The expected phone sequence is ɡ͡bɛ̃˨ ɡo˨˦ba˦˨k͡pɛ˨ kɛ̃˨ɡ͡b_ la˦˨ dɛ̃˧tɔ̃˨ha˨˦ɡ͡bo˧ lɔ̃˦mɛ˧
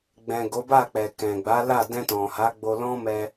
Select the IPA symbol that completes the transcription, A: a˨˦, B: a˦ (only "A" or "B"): A